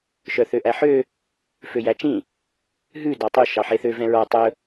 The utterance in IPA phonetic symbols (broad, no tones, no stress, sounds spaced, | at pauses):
ʃ œ θ ø ʔ æ ħ ø | f ø j æ t͡ʃ ĩ | ɦ ʉ d ɑ tˤ y ʃ ɑ ħ e θ ø v ɛ̃ ɹ ɔ tˤ ɵ